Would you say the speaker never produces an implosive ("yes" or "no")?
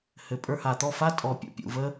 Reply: yes